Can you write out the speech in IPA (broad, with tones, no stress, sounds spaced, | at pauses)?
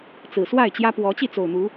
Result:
t͡s ɹ̩˨˩ s w a˥˨ ɪ̯ t͡ɕ j ä˦ p w ɔ˨˦ t͡ɕ i˥˨ t͡s o˨˩ ʊ̯ n̪ u˨˦